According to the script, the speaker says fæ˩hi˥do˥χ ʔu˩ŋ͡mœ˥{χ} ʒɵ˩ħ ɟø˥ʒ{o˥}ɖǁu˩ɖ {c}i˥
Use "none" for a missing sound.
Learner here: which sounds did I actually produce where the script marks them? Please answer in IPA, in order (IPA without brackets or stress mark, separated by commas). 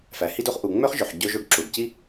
χ, o˥, c